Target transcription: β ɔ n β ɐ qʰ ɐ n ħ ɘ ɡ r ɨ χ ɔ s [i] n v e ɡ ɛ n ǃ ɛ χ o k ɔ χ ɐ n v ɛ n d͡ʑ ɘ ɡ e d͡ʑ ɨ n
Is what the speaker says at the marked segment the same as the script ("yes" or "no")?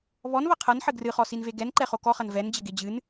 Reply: yes